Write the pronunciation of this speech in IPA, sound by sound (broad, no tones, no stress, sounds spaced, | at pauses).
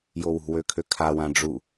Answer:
j o w ṳ w ø kʰ ø kʰ a w ã ɖ͡ʐ u